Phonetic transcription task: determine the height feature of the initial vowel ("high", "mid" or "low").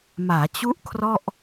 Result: low